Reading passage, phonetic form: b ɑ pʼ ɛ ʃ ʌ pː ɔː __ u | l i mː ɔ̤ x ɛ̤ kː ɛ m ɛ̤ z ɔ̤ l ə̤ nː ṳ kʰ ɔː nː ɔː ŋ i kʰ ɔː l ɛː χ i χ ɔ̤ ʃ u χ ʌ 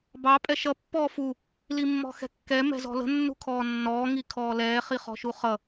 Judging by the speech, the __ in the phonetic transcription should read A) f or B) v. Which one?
A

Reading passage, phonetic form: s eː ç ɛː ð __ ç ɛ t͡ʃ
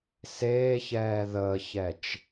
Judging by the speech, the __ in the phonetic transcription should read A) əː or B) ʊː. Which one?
A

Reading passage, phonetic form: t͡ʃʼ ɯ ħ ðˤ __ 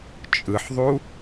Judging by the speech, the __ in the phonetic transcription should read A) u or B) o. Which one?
A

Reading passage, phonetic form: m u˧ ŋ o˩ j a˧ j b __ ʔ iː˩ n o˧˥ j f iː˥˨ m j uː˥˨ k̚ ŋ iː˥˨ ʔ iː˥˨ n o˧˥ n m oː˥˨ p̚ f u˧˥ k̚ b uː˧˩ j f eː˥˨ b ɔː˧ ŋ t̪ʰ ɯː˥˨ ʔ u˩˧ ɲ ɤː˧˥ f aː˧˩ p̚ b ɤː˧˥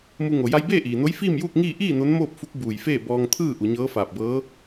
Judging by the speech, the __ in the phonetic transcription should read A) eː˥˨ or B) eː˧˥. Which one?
A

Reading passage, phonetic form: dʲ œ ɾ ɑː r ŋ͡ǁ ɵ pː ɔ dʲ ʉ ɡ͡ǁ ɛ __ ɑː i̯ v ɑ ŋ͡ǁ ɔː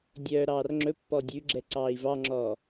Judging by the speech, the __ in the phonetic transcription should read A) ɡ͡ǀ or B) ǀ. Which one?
B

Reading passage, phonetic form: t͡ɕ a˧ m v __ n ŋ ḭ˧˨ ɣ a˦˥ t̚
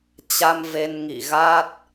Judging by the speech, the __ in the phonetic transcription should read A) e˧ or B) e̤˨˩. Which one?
A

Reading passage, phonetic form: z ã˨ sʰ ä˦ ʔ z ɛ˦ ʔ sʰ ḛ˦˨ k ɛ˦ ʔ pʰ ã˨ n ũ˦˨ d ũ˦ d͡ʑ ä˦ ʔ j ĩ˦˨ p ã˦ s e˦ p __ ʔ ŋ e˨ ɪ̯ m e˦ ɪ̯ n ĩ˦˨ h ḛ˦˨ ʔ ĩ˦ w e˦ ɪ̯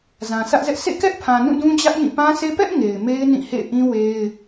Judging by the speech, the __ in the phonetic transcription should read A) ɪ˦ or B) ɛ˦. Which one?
B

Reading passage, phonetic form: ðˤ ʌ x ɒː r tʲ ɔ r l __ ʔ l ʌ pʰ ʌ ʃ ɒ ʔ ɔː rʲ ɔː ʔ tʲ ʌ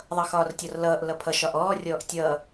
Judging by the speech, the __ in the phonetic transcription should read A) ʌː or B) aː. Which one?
A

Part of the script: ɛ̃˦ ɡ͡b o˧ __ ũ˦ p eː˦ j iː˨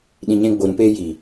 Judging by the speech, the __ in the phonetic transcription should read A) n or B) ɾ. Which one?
B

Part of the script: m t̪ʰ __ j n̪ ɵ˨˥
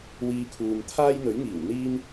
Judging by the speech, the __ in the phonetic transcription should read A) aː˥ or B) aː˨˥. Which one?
A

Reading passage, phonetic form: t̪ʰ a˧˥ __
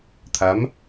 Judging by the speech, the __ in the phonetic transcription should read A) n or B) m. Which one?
B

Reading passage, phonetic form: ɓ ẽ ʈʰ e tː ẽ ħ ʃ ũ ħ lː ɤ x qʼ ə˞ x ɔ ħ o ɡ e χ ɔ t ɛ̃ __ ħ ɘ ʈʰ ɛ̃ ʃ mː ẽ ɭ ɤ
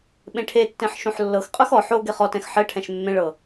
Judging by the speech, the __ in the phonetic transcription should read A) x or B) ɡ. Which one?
A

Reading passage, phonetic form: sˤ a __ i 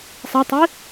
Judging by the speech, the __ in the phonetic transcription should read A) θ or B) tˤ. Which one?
B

